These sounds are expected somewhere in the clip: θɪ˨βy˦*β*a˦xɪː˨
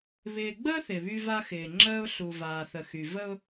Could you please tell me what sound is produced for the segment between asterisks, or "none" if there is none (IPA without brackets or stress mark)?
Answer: v